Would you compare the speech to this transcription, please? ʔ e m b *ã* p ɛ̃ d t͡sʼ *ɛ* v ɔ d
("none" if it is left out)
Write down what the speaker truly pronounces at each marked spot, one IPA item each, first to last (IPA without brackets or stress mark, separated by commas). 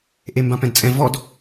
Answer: ã, ɛ̃